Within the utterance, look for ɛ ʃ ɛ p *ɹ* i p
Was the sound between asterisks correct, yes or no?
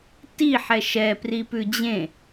no